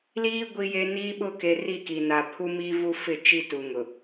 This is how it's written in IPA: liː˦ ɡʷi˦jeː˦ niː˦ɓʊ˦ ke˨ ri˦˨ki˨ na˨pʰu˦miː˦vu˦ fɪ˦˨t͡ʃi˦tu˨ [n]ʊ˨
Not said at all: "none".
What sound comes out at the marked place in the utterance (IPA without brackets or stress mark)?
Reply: ŋ